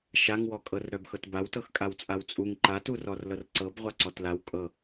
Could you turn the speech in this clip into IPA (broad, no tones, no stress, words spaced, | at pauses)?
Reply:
ʃaŋwɔkʼɤr ɾœbxɤtbaw tɤxkʼawt͡sʼawt͡sʼuŋ ǃaturɔr lɤrǀɤb ʁʷaǀɔtlaw kʼɤ